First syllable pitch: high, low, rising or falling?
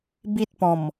high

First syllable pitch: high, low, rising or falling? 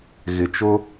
low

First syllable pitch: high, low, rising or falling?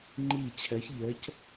falling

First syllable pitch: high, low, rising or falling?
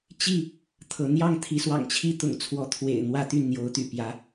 falling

